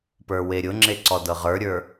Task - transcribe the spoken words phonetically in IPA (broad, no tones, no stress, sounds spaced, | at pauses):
p ə˞ w e ɾʲ ʊ ŋ͡ǁ e ǀ ɔ d ɤ ʁ ə˞ ɾʲ ə˞